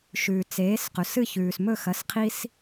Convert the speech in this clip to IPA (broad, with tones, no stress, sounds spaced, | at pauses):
ʃ ʉː˩ t͡s eː˩˥ s q ɵ˩ s ɨ˥˩ ç ʉː˩ s m ɵ˥˩ x ɐ˩˥ s qʰ i˧ s